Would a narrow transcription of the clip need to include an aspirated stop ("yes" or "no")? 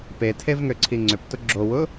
yes